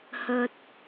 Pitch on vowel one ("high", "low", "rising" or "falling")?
low